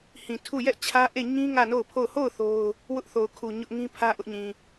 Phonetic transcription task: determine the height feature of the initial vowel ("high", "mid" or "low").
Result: high